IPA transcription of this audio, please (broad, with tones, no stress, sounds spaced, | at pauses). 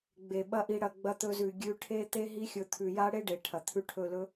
ɡ͡b e˨ ɓ ɐ˦ ʔ i˧ ɽ ɐ˧ ɡ͡b ɐ˧ t̪ ɵ˧ z ʉ˨ ɡʲ ʉ˧ ʈʰ e˦ t̪ e˦ ɦ i˦ xʲ ɵ˧ t̪ʰ ʉ˨ j a˦ ɽ e˦ ɖ e˨ ʈʰ ɐ˨ t̪ʰ ʉ˦ ʈʰ ɵ˦˨ l ɵ˦